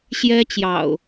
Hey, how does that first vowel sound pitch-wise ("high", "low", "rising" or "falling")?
high